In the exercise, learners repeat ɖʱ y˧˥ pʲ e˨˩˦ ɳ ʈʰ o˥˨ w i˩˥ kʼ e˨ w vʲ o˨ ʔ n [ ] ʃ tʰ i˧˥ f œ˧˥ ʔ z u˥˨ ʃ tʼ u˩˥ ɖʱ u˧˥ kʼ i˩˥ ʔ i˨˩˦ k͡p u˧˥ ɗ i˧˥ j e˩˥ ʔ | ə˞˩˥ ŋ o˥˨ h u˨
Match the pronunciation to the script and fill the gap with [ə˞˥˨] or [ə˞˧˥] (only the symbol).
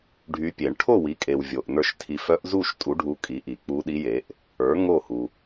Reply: ə˞˥˨